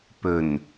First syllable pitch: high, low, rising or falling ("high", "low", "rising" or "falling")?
low